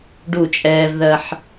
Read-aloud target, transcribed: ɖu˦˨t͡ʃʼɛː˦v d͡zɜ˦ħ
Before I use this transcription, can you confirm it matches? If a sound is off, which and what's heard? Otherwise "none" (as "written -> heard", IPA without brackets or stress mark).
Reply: d͡z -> ð